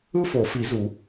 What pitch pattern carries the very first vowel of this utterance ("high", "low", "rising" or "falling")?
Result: high